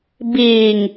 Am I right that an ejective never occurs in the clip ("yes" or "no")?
yes